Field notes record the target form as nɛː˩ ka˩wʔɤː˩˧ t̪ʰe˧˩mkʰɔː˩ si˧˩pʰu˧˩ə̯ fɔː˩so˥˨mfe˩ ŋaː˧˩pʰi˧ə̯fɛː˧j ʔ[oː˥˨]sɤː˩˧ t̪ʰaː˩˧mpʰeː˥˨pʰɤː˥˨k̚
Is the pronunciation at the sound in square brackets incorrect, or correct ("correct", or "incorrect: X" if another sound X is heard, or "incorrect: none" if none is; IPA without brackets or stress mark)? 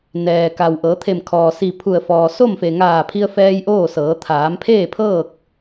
correct